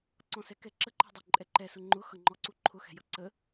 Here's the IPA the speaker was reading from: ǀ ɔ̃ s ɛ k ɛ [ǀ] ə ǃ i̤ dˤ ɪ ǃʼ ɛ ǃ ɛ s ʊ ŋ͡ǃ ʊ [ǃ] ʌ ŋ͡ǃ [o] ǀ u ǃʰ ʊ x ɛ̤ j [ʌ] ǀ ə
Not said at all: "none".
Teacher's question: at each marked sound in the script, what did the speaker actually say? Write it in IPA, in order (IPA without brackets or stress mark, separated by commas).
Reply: ǁ, x, ɔ, ʌ